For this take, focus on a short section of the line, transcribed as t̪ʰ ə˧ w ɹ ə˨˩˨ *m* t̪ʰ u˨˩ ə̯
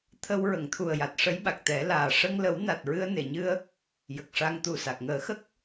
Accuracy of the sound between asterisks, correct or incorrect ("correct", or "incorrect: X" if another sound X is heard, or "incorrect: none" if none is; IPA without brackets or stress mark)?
incorrect: ŋ